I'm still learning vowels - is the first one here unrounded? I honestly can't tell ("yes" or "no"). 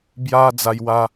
yes